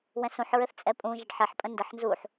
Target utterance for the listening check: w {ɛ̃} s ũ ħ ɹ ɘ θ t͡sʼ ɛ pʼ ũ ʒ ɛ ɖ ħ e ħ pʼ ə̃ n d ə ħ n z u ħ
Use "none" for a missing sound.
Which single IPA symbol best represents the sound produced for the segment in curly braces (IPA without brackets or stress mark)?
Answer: ɛ̃